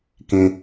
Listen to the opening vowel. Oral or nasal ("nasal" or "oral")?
nasal